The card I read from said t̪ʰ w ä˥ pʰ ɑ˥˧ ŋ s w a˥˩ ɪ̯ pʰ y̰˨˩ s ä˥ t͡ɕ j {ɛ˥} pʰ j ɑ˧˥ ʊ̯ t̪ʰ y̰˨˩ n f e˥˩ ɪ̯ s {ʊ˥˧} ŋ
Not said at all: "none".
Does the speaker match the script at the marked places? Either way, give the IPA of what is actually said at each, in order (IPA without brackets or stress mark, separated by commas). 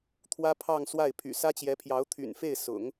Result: ɛ˧˥, ʊ̰˨˩˦